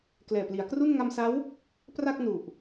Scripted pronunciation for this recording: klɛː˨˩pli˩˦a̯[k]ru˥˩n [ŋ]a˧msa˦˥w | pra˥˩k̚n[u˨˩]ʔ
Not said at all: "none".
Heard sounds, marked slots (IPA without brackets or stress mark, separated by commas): k, ŋ, u˨˩